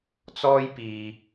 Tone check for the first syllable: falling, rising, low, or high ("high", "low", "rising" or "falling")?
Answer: high